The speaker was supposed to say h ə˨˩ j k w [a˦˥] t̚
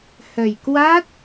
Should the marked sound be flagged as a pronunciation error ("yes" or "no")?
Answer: no